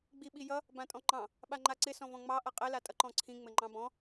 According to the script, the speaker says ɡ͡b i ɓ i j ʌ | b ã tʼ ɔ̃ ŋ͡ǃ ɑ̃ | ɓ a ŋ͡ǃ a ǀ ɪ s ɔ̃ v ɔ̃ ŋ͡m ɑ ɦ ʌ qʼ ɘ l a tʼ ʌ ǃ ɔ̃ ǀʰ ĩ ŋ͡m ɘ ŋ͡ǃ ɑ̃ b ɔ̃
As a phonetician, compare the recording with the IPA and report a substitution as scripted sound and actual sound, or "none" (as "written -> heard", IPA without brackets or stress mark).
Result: ɦ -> ʔ